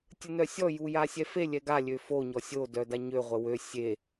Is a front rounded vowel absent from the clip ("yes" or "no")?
no